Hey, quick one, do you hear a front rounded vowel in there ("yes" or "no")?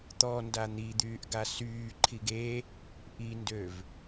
yes